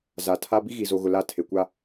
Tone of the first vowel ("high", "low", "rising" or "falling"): low